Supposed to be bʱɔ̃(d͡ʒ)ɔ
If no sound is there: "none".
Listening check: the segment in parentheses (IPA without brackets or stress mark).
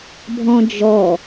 d͡ʒ